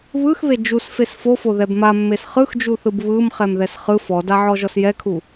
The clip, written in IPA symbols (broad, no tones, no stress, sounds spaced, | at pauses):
β ɯ x β e d͡ʒ u s f e s f o f o ð ɛ b m a mː e s χ ɯ x d͡ʒ u θ ɯ b β ɯ m χ ɛ m ð ɛ s χ ɯ f ɔ d a ʕ ɔ ʒ ɔ s j ɛ kʰ u